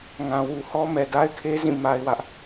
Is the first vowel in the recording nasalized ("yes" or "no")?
yes